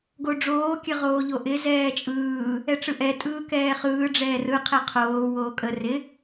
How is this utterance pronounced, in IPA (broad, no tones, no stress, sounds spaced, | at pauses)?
ɡ o ɖ͡ʐ oː kʲ ə ʁ oː ʎ o ʔ ɪ z ɛː t͡ʃʼ ɯː | ɛ ʈ͡ʂ ɯ ʔ ɛ tʼ ɯː k ɛː χ ɯː ɖ͡ʐ ɛː r ɯ qʰ ɛ qʰ oː w oː kʼ ə r ɪ